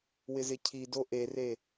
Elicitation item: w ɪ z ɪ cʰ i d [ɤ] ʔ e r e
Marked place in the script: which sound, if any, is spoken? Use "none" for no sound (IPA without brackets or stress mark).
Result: o